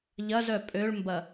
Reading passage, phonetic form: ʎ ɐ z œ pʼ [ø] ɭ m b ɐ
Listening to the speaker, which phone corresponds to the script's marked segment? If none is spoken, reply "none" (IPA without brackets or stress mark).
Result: ø